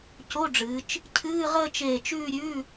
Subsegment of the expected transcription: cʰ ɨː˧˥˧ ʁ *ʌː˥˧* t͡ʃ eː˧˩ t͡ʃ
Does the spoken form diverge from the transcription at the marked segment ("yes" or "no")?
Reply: yes